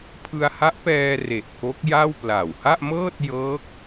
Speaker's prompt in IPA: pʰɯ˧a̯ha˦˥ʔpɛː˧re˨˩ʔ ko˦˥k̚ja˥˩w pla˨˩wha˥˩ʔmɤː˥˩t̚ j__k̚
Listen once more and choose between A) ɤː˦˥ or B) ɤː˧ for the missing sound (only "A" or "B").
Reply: A